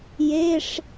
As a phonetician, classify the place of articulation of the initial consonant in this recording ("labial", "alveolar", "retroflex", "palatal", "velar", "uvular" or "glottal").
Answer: palatal